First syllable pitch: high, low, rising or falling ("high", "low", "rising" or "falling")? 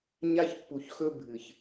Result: high